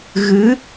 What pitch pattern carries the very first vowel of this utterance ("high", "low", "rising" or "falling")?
rising